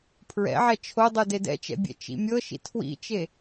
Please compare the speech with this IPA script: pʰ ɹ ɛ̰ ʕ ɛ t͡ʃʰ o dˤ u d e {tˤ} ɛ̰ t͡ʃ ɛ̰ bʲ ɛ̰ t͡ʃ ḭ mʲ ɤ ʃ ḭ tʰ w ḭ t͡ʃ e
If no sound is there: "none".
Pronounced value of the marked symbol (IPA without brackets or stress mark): d